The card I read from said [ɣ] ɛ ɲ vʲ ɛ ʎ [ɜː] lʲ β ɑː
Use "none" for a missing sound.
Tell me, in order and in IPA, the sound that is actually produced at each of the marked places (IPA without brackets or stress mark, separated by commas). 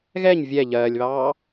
ɣ, ɜː